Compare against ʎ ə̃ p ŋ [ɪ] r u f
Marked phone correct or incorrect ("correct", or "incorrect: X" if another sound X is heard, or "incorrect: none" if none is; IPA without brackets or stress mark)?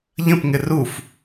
correct